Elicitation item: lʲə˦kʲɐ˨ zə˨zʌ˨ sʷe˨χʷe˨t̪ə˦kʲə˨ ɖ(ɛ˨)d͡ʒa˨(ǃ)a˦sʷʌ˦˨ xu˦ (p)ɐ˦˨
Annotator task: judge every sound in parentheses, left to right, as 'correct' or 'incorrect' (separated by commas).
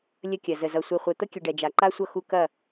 correct, correct, incorrect